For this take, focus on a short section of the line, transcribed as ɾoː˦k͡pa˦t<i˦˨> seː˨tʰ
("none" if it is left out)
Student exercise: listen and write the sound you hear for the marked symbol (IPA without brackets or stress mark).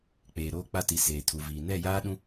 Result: i˨